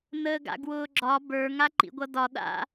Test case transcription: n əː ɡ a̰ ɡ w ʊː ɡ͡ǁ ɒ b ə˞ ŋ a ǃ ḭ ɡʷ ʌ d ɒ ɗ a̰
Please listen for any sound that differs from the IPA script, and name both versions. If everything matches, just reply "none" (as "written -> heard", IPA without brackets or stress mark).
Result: none